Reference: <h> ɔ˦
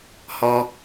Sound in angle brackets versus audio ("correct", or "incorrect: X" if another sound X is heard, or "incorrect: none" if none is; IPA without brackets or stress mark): correct